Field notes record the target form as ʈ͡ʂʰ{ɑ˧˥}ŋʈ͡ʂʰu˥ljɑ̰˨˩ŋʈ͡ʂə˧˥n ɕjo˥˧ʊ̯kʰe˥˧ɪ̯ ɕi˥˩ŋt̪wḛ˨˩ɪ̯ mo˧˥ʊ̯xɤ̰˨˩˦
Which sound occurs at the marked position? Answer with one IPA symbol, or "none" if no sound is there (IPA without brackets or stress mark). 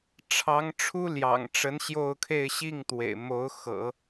ɑ˧˥